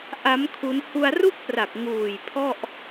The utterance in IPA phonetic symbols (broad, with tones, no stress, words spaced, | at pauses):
ʔa˦˥m kʰu˦˥n hu˧a̯ru˥˩k̚pra˨˩k̚ ŋuː˨˩j pʰɔ˥˩ʔ